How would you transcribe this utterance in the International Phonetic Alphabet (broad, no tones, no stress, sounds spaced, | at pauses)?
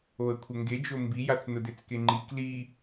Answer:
o ə̯ kʷʰ ə ŋ ɡ e d͡ʒ o m b i j a t͡s n ʊ d e t͡s k e ŋ͡ǃ i k l i